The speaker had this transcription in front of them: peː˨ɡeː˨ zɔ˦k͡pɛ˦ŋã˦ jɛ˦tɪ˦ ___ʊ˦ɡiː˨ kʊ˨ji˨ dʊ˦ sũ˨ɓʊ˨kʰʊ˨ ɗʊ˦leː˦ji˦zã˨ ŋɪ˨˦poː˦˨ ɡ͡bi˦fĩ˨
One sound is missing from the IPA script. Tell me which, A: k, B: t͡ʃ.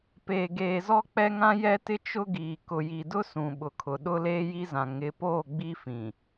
B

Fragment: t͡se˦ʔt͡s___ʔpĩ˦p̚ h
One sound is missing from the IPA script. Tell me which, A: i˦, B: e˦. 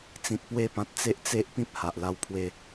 B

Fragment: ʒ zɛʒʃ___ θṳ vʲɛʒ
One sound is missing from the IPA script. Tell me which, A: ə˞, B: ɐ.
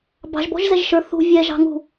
A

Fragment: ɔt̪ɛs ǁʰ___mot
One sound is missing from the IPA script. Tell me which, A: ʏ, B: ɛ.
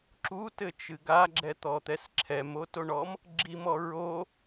B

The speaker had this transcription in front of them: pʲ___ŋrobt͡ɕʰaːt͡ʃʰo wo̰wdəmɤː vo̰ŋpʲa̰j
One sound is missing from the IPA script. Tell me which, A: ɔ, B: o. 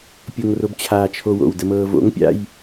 B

